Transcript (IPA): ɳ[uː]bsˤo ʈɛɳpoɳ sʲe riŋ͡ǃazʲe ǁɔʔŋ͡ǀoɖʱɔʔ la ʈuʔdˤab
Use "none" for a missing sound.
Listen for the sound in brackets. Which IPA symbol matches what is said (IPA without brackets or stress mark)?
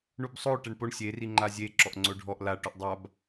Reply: u